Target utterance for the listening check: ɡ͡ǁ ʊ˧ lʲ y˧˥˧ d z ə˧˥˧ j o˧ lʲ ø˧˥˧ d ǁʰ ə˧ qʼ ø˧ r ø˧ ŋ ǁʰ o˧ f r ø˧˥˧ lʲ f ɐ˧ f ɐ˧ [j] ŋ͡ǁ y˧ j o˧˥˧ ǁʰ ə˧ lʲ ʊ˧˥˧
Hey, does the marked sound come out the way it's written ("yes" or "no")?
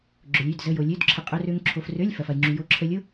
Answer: yes